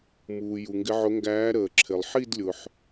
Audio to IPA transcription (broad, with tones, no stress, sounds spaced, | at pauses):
m uː˩ j u˩ ŋ ɡ ɪ˨˦ ʕ ʊ˨˦ ŋ ɡ æː˨˦ ɾ əː˩ ǁʰ ɪ˩ lˠ ħ i˥˧ d lʲ ʊ˩ ħ